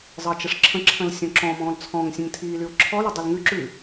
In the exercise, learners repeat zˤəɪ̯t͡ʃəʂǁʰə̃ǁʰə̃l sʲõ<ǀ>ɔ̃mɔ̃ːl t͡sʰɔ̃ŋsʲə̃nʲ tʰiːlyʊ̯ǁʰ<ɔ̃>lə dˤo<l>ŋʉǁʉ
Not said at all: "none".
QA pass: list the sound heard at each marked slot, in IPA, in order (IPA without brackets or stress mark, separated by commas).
ǁ, ɔ, l